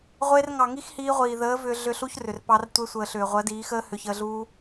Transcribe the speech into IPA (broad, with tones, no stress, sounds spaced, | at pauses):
ʁʷ e˧ r ŋ ɑ˨ ŋ i˦ x h iː˧ ʁʷ iː˨ ð əː˨˦ v ʏː˧ ɮ ʏ˧ ɬ u˦ ç r ʏ˨ r p ɑ˧ r tʷ e˧ sʷ əː˨ ɬ ʏː˨ ʁʷ ɜ˨˦ d iː˨˦ x əː˦ h ʏ˧ ç əː˧ ɮ uː˦